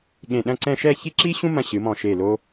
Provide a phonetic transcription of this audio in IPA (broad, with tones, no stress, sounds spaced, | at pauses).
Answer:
ɠ ẽ˧˩ ɗ ɐ̃˥˧ ǀ ɛ̃˥˧ ʃ ɛ˥˧ ç i˥ ǁ i˥ ɕ ũ˥ m ɐ̃˧ ɕ ɨ˩˧ m ɔ̃˧˩ ʃ e˧˩ l o˧